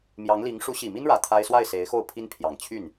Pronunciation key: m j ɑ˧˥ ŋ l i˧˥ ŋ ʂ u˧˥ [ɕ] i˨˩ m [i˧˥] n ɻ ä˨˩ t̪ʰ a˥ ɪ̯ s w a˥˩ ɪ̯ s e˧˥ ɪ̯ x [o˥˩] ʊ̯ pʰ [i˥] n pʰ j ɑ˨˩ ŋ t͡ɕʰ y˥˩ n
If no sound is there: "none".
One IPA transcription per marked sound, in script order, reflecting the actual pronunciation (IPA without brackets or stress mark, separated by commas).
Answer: ɕ, i˥, o˥˩, i˥